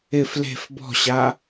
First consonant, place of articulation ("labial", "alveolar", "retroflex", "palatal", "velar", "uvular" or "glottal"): labial